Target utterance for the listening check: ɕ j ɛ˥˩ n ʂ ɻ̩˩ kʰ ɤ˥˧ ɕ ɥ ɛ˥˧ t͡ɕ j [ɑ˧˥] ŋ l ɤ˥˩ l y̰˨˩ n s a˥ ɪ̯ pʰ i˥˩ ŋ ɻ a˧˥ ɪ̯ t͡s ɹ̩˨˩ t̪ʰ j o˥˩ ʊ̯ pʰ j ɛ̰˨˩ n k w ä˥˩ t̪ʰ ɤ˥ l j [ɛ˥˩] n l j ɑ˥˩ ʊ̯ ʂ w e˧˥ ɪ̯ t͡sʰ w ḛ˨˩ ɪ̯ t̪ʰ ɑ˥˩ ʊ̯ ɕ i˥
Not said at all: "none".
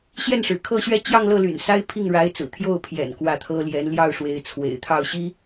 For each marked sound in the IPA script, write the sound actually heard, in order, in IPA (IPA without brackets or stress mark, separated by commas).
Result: ɑ˥˧, ɛ˧˥